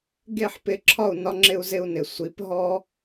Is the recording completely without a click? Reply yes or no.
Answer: no